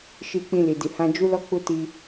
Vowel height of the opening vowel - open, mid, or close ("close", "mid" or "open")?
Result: close